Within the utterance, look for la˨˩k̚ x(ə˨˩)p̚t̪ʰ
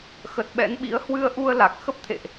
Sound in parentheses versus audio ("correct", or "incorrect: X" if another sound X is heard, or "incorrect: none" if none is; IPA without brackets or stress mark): incorrect: ə˦˥